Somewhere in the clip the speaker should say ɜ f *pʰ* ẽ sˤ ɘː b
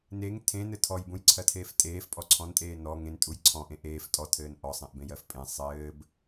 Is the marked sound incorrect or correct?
incorrect